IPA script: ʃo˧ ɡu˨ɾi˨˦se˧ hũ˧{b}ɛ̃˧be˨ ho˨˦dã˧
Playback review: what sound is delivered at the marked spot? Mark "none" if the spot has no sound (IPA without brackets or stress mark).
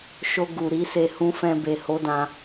f